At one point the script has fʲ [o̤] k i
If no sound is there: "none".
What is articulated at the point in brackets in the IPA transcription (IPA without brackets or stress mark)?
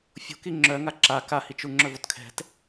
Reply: o̤